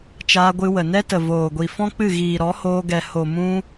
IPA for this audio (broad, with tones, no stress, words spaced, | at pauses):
t͡ʃaː˧ɡʷɨ˧wə˨ nɛ˦tə˨voː˨ɡʷi˨ fɔ̃˦k͡pɨ˦˨ ɣiː˨ɾɔ˨˦hoː˧ɡɛ˨ ho˨mũ˧